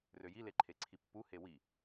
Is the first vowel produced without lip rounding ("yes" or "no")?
no